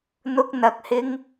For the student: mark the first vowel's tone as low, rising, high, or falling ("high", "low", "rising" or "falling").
high